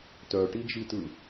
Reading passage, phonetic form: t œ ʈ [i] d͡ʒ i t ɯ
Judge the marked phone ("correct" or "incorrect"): correct